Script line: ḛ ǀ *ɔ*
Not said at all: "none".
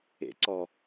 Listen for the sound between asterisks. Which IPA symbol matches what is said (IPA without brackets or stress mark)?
ɔ